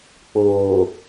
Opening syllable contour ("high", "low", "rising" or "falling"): low